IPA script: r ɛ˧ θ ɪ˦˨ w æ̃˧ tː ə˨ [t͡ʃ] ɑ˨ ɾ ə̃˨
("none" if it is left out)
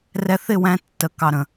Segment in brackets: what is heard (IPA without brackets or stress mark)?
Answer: k